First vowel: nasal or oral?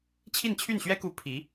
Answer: oral